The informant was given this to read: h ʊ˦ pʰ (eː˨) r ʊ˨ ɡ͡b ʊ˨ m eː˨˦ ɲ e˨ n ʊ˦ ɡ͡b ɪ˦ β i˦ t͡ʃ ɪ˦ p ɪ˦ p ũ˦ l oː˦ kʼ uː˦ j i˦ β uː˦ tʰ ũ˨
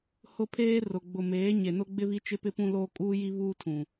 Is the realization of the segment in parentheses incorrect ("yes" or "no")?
yes